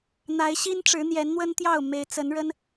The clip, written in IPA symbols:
n̪ a˨˦ ɪ̯ ɕ i˦ n ʈ͡ʂ ɻ̩˨˦ n̪ j ɛ˨˦ n n̪ w ə˦ n t̪ j ɑ˥˨ ʊ̯ m e˨˦ ɪ̯ t͡s ə˨˦ n ɻ ə˦ n

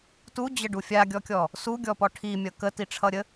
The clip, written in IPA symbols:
t u d͡ʑ ə ɖ u fʲ a ɡʲ ɔ kʲ ɔ | s u ɡʲ ɔ p ɔ ʈʰ i mʲ ʌ k ə t i ʈ͡ʂʰ ʌ ɾʲ ə

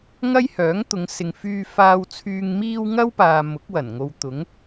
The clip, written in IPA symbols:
ŋ ɐ˥ j h œː˨˥ ŋ t̪ ʊ˨˧ ŋ s ɪ˨ ŋ f yː˧ f aː˨ w t͡sʰ yː˨ ŋ m iː˧ w ŋ ɐ˥ w p aː˨ m ʊ˨˥ k̚ w ɐ˨˩ n ŋ o˨ w t̪ ʊ˨˥ ŋ

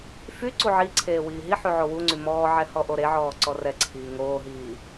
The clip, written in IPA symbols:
f y ǀ u ʕ i ǀʰ eː w iː ɦ i ħ y ʕ o w u ŋ͡ǀ y m ɔː ʕ ɛ h ɔ ʔ o ɾ e ʕ ɔː ǀ ɔ r ɛ ǀʰ iː ŋ oː ɦ iː

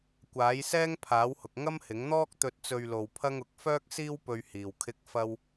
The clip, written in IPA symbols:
kʷ aː˨˥ j s ɛː˥ ŋ pʰ aː˨˥ w h ʊ˨ k̚ ŋ ɐ˥ m h ɪ˨˥ ŋ n̪ ɔː˥ k̚ t̪ ɵ˧ t̚ t͡s ɵ˧ ɥ l o˧ w pʰ ɐ˥ ŋ ʊ˨˥ k̚ f œː˥ k̚ s iː˥ w p ɵ˧ ɥ h iː˨ w kʰ ɪ˥ k̚ f ɐ˥ w

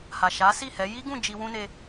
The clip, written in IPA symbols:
h a˨ ʃ a˨˦ s i˦˨ h ɛ˨˦ j i˦ ɡ ũ˦˨ d͡ʒ i˧ w ũ˧ n e˧

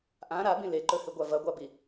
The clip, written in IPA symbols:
ʔ ã ɾ a b ĩ l e ǃ ɵ h ɨ ɡʷ a v ɐ ɡʷ a b i

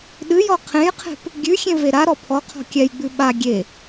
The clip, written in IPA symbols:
ɗ ɨ j ɔ qʰ ẽ j qʰ e̤ p | ɡʲ ʉ xʲ ẽ v e ɾ a ɾ ɔ pʰ ɔ qʰ ɔ̤ kʲ ɛ j ɡ͡b ʉ ɓ a ɡʲ e

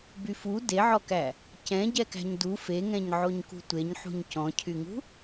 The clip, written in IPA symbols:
b y f u d e ʕ ɔ k æ | c ɛ̃ ɟ ɛ k æ̤ ɲ d u f e ŋ ɛ̃ ɲ ʕ o ɲ k ṳ tʷ e ɲ ħ ṳ ɲ c ɔ̃ cʰ y ŋ ṳ

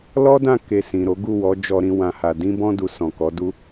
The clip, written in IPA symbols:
l ɔ˦ d ã˦˨ k e˧ s ĩ˨ ɾ o˨˦ ɡ u˦˨ w ɔ˨˦ d͡ʒ ɔ˧ ɾ ĩ˧ w ã˨ h a˨ d ĩ˧ b ɔ̃˧ d u˨ s ɔ̃˨ k ɔ˨˦ d u˦

